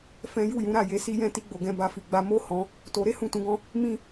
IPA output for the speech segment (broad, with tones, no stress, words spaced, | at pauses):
fɛ̃˦ ju˦˨jũ˨˦ɾa˦˨ je˨˦si˦jɛ̃˦˨ ti˧ɡ͡bo˨ɡɛ̃˨ ba˧fi˨ɡ͡ba˧ mo˦ hɔ̃˧ | to˧ ɾe˦hũ˦˨tũ˨˦ɡɔ̃˦ | mĩ˦